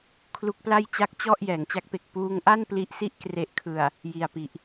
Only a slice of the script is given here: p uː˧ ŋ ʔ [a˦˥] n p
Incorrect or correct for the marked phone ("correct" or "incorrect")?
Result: incorrect